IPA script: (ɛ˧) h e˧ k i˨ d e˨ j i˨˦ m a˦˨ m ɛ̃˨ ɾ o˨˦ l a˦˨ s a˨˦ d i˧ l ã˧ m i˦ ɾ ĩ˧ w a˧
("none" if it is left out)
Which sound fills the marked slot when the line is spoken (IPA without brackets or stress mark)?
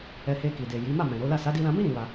ɛ˧